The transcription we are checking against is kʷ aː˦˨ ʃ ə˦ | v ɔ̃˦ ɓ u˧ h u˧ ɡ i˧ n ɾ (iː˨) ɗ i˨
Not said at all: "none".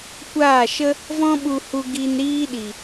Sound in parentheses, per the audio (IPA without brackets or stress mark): iː˦